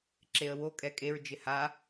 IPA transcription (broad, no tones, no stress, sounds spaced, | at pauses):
ǁ e ə̯ w o kʼ ɛ kʼ e ɹ d͡ʒ ɪ h a